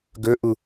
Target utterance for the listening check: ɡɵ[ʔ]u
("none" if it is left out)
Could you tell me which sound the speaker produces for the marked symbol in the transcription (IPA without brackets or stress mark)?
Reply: ʔ